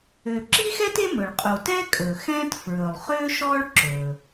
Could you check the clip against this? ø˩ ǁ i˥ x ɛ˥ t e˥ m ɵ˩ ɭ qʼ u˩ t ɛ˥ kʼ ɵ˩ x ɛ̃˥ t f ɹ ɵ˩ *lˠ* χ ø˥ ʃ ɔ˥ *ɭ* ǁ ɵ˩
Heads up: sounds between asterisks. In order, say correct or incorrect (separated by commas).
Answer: correct, correct